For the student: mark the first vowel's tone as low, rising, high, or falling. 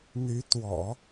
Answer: rising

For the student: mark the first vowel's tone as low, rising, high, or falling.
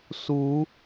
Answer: rising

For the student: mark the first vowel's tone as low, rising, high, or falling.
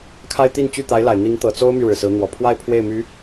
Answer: high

